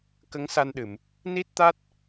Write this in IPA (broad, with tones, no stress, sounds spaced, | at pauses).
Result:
k ə˧˥ ŋ s a˧ n ɗ ɨ˨˩˨ m | n i˦˥ t̚ t̪ a˦˥ t̚